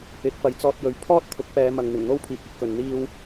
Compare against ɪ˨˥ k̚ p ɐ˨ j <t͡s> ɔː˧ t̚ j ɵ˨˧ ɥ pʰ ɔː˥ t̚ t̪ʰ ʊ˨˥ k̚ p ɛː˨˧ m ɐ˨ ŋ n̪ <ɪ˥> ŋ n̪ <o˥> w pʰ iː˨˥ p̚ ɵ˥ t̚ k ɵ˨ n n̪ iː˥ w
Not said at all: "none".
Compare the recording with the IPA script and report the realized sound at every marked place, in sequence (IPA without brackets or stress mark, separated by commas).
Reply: t͡s, ɪ˨˩, o˥